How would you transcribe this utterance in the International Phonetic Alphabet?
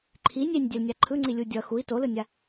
ǃʰ i nʲ e nʲ dʲ ɛ l nʲ a ǃʰ ɯ ŋ͡ǀ i lʲ u dʲ ʌ x u i̯ t o l ɯ nʲ a

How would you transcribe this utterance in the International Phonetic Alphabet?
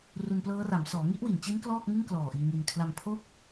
r u˧ n p l ɤː˦˥ r a˩˦ m s ɔː˩˦ ŋ i˦˥ ʔ w i˨˩ n t͡ɕ i˦˥ n k l ɔː˥˩ k̚ ŋ ɯ˥˩ ŋ k l ɔː˨˩ ʔ iː˧ ŋ i˧ n kʰ l a˧ m pʰ o˥˩ k̚

